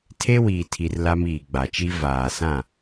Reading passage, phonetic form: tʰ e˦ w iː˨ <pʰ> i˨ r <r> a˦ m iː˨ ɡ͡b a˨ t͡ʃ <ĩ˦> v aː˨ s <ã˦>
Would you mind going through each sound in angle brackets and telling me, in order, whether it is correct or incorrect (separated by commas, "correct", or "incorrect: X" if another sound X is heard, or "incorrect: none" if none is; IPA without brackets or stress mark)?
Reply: incorrect: tʰ, incorrect: l, incorrect: i˦, incorrect: ã˦˨